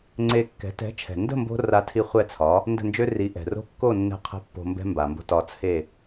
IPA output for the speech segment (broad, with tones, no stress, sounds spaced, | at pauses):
ŋ͡ǀ e˧ kː ɛ̤˩˥ t ɛ̤˩˥ t͡ʃʰ ɛ̤˩ n d ə̤˥˩ m b o̤˧ r a˧ tʰ i˧ χʷ ɛ˥˩ t͡sʰ ɒ˩˥ | n d ə̤˥˩ n d͡ʒ ø˥ r i˩˥ ʔ ɛ̤˩ r o̤˥ kː o˥˩ nː ɛ̤˥˩ qʰ ə̤˥˩ pː o̤˧ m b ɛ̤˥ m b a˩ m b o̤˥˩ t ɒ˧ t͡sʰ e˥˩